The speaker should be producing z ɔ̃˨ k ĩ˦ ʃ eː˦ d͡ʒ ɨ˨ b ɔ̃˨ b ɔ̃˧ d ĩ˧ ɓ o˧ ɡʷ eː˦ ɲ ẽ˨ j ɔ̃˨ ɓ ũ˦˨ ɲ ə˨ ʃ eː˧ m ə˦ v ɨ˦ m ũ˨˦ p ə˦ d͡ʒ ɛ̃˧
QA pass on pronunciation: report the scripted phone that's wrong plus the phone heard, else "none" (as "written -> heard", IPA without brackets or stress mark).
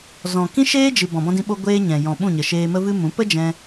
ẽ˨ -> ɛ̃˨